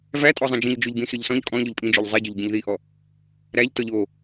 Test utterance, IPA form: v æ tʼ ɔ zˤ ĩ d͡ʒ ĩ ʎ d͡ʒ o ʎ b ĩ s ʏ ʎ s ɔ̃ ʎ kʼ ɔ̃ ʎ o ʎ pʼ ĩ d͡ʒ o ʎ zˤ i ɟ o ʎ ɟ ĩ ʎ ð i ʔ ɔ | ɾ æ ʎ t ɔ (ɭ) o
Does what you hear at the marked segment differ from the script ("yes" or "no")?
yes